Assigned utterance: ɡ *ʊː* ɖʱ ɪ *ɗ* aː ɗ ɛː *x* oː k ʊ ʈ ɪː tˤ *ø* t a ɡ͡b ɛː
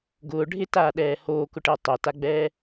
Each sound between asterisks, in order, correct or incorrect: correct, incorrect: t, incorrect: h, correct

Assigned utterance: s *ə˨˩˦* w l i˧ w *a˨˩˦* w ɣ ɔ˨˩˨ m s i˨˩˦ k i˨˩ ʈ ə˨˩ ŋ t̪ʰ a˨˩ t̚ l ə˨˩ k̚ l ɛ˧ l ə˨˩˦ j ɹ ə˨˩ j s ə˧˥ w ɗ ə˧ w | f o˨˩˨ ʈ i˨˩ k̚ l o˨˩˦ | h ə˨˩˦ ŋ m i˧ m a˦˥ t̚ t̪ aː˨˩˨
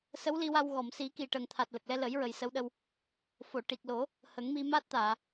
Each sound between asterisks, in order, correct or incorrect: incorrect: ə˧˥, incorrect: a˧

